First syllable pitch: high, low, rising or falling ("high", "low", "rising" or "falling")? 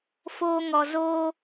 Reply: high